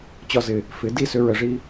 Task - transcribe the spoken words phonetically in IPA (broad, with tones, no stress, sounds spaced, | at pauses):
t͡ɕ ɒ˧ z ɪ˨ | f ɪ˨˦ d i˦˨ s ʏ˧ ɹ ə˨ ʐ i˧